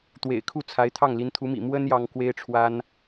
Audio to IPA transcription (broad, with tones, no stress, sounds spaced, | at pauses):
t̪ w ḛ˨˩ ɪ̯ kʰ u˥˩ t͡sʰ a˧˥ ɪ̯ t̪ʰ ɑ˥˩ ŋ l i˧˥ n t̪ʰ u˧˥ m ḭ˨˩ m w ə˥ n j ɑ˥ ŋ k w e˥ ɪ̯ ʈ͡ʂʰ w a˥ n